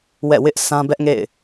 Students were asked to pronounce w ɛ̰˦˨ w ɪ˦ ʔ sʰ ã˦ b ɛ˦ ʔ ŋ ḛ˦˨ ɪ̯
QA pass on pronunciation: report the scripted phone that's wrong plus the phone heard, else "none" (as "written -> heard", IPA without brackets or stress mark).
none